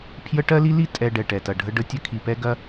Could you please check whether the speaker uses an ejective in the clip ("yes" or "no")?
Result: yes